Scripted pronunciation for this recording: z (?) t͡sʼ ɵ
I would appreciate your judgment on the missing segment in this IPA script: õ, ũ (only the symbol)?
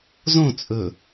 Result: õ